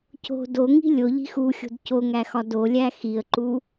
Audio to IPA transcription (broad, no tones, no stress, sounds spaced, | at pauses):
c o̤ d o ŋ i̤ lʲ o ʎ i̤ x u xʲ o̤ d c o ŋ æ x ɒ d o lʲ æ x i ə̯ ǃ u